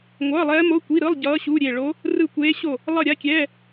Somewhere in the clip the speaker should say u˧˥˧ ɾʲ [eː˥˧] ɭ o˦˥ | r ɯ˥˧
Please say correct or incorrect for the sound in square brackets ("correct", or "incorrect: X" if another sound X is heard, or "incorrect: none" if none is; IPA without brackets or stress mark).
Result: incorrect: e˥˧